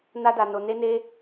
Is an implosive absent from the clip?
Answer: yes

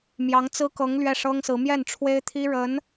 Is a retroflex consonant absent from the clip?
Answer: no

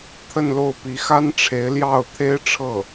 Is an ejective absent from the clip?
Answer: yes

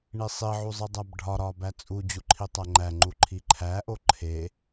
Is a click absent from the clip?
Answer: no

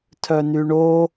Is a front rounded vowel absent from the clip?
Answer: no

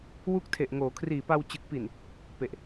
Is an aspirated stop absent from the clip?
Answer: no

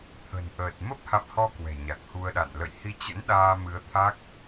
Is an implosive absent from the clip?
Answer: no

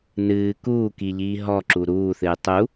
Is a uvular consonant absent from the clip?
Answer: yes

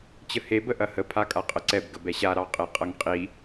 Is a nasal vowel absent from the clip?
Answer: yes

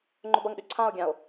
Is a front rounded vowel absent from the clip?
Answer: no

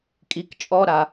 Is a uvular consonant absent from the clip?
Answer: yes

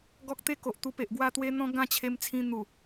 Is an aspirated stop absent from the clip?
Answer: no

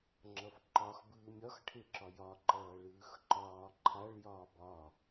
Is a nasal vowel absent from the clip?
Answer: yes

